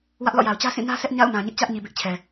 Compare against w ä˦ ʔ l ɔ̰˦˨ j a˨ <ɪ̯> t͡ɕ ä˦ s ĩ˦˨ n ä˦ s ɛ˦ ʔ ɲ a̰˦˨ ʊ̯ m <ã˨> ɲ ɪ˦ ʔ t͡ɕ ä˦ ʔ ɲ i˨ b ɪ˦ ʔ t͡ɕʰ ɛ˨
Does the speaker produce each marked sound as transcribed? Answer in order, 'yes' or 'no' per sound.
no, yes

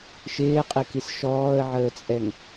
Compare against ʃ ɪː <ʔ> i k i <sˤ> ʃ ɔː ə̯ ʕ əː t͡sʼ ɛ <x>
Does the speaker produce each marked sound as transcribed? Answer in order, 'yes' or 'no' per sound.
no, no, no

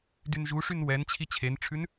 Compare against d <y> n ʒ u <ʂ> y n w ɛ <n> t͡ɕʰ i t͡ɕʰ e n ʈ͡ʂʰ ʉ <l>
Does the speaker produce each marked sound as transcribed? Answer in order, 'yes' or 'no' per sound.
yes, yes, yes, no

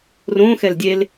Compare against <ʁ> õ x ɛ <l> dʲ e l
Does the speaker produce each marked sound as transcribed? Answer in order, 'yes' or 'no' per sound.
no, yes

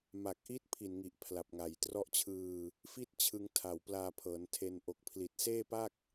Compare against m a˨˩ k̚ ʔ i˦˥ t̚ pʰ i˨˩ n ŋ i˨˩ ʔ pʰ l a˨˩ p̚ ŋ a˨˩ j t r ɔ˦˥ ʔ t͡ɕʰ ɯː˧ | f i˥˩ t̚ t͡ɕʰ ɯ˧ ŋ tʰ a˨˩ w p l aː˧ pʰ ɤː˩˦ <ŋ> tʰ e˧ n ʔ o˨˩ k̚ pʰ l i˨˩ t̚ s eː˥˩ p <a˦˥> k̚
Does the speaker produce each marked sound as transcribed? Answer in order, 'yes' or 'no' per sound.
no, no

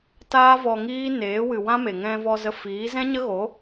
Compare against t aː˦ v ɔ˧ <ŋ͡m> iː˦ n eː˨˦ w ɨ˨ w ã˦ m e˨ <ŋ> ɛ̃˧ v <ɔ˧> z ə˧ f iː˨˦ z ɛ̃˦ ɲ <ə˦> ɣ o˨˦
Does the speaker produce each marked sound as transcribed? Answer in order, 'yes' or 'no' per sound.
no, yes, yes, yes

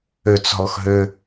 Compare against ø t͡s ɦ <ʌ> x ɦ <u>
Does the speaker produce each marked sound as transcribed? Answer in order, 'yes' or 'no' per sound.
no, no

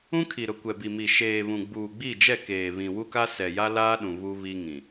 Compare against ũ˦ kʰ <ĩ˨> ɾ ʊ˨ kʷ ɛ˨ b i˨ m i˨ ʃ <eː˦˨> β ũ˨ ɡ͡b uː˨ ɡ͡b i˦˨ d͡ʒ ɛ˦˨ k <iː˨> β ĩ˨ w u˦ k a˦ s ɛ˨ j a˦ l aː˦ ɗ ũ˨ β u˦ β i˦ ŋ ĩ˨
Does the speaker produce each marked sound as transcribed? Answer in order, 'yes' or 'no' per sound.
no, no, no

